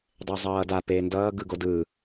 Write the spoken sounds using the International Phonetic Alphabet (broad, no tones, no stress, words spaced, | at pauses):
dˤezˤʌːda peːndʌː ɡɯɡodɯː